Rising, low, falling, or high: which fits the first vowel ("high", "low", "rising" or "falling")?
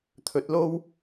low